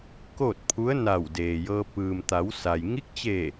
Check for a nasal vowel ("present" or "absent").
absent